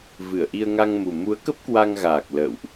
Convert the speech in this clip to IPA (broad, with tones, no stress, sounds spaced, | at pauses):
v ɨ˧˩ ə̯ ʔ i˧ ə̯ ŋ a˧ ŋ m u˨˩ m u˨˦ ə̯ k ə˦˥ p̚ k w a˧ ŋ ɣ aː˨˩ k̚ l ə̰ː˧˨ w ʔ